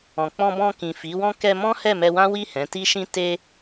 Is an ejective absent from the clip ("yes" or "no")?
yes